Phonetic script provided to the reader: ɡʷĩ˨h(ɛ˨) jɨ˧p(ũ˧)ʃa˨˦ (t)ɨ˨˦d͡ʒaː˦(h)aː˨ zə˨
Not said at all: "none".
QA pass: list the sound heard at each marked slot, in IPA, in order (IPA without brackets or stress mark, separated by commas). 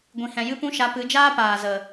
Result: ɛ̃˨, ũ˧, p, p